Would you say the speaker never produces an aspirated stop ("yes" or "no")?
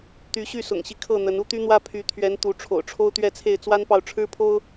no